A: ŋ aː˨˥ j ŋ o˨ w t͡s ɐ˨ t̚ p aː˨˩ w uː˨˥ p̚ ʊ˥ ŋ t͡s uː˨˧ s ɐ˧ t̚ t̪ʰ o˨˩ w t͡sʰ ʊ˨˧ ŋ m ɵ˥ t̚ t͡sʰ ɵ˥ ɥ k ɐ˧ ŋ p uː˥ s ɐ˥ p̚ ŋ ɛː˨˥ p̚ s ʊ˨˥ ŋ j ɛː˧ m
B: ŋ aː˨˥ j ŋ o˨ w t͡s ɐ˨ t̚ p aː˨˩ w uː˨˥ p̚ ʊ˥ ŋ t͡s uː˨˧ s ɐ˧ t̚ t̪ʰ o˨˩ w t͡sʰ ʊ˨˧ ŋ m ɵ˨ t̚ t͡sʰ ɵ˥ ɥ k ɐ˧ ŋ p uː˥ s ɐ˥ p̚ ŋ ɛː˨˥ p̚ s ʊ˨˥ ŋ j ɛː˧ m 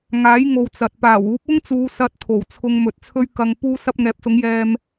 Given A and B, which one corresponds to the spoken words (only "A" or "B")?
B